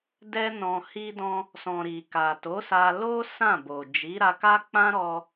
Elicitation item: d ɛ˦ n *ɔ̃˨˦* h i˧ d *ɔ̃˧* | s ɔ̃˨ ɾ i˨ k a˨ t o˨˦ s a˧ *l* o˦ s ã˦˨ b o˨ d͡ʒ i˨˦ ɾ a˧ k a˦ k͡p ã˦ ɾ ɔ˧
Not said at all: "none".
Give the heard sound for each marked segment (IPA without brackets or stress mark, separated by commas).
ɔ̃˧, ɔ̃˧, l